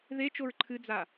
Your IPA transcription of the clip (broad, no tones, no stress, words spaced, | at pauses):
ðet͡ʃoɹ ǃʰɨd͡za